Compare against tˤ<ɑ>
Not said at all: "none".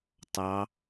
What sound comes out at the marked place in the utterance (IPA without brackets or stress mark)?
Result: ɑ